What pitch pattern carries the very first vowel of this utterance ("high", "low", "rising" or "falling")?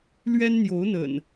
high